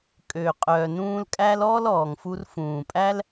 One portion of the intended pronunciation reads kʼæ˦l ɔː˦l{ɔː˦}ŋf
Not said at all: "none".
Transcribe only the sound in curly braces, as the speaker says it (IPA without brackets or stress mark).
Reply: ɔː˨